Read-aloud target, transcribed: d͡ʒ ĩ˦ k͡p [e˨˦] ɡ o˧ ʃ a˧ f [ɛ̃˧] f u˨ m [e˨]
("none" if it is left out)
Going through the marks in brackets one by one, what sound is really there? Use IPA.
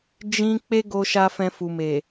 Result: e˦, ɛ̃˧, e˨

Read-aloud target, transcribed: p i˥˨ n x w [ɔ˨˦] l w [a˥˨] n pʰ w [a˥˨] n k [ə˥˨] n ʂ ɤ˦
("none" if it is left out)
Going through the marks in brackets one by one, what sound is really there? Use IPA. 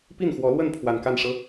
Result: ɔ˨˦, ə˥˨, a˨˩, a˥˨

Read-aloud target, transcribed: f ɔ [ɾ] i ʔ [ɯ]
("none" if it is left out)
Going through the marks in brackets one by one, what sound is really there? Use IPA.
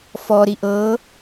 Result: ɾ, ɤ

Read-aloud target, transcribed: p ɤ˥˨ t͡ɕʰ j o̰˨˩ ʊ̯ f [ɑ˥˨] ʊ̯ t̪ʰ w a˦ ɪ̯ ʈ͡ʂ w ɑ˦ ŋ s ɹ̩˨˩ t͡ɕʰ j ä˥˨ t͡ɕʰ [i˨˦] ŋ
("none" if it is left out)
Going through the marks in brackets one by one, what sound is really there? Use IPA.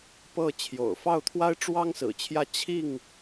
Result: ɑ˥˨, i˥˨

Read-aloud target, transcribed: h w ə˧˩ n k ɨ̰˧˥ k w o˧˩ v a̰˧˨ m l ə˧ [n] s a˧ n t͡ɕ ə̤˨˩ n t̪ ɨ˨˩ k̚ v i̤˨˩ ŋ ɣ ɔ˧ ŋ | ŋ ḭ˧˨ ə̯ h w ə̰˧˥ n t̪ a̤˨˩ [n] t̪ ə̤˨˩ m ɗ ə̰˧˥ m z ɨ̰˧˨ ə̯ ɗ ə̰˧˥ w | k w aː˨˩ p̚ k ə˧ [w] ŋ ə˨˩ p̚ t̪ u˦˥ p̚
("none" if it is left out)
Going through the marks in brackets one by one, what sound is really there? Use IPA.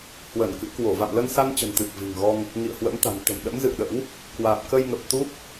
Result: n, n, j

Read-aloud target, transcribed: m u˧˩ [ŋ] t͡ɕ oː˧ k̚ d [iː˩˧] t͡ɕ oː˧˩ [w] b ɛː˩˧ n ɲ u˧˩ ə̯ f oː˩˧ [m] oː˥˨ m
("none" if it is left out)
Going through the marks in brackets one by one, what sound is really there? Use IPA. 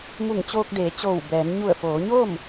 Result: ŋ, eː˩˧, w, ɲ

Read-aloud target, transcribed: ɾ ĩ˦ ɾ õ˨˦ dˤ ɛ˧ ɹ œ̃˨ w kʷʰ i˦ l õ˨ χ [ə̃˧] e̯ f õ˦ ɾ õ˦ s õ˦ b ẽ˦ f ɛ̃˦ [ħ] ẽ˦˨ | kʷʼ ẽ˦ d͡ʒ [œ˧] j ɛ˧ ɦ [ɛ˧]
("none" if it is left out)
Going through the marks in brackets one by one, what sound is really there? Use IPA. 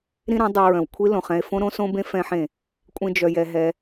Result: ɛ̃˧, ħ, œ˧, ɛ˧

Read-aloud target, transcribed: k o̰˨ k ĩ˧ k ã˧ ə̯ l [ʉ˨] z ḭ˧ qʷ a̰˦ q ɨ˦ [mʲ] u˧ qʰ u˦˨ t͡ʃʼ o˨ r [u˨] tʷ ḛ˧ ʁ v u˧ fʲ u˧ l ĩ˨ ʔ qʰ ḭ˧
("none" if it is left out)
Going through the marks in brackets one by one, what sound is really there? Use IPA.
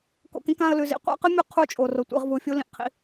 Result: ʉ˨, mʲ, o˨

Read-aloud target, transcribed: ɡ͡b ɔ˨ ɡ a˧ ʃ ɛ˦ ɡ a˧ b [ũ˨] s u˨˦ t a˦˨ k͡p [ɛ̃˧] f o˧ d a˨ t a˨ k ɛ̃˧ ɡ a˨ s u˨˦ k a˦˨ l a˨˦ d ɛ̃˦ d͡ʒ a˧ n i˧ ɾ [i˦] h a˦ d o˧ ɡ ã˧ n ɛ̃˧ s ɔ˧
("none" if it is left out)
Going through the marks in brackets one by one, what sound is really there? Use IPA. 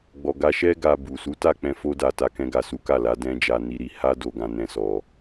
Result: u˨, ɛ̃˧, i˧

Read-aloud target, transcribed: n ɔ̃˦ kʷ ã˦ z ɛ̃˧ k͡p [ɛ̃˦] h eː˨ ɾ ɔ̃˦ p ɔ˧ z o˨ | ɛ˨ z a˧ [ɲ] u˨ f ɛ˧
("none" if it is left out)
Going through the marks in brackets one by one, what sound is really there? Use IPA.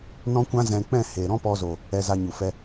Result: ɛ̃˦˨, ɲ

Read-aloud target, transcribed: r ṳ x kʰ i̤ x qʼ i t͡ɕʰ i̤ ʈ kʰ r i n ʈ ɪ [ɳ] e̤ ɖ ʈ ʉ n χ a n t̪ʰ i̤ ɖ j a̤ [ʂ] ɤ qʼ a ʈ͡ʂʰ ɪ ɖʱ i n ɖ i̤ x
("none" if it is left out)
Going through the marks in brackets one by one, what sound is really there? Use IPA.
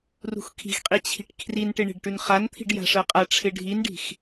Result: ɳ, ʂ

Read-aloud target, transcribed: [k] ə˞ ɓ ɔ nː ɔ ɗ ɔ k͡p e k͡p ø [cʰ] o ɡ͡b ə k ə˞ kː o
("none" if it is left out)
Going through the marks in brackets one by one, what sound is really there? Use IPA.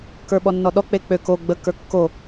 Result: k, k

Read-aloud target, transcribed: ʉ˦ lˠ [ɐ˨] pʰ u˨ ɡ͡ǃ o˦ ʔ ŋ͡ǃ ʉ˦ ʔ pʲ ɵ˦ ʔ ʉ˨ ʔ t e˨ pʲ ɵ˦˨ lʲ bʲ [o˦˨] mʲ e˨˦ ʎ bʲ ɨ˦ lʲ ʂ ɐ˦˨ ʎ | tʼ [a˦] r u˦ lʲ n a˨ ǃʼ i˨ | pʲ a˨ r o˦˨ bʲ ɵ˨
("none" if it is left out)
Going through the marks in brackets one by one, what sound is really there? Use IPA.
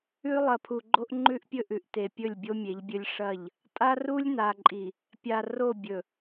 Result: ɐ˨, o˦, a˦

